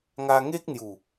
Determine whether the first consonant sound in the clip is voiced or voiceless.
voiced